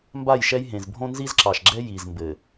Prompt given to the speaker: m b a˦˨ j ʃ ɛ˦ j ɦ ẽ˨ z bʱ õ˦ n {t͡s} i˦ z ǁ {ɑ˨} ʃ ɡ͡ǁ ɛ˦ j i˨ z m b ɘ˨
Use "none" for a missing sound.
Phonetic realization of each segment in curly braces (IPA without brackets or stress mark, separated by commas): z, ɑ˨